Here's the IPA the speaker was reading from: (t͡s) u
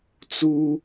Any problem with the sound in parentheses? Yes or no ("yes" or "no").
no